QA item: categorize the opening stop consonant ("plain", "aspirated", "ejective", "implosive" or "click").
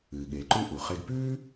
implosive